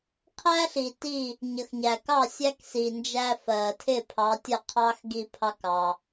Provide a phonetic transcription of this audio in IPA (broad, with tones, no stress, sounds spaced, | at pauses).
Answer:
qʰ æ˥ ɬ i˩ t i˥˩ | ɲ ə˩ x ɲ æ˩ k ɑ˥˩ sʲ æ˥ k s i˩ n d͡ʒ æ˧ f ɜ˩ tʰ ɪ˥˩ pʰ ɑ˩˥ tʲ ə˥˩ qʰ ɑ˥ x ɡ i˧ pʰ ɑ˧ k ɑ˩